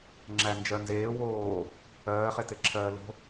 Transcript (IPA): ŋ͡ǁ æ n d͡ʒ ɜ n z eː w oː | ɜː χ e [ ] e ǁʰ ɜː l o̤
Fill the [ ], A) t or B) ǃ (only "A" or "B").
A